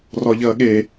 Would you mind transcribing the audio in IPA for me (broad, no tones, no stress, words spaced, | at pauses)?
rɒʎɐːɠe